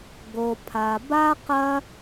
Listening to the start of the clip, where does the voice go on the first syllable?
low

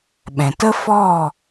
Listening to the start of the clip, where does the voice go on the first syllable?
low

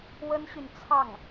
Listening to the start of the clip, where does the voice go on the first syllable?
high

